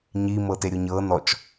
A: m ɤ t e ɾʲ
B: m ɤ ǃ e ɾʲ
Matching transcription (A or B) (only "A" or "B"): A